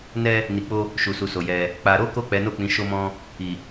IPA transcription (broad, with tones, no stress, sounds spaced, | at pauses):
n ɛ˦ | n i˨ k͡p o˧ | ʃ u˨ s u˨ s o˨ j ɛ˧ | k͡p a˧ ɾ o˦ k o˦˨ k͡p ɛ˨˦ n o˦˨ k͡p ĩ˨˦ ʃ o˦ m ɔ̃˦ | i˨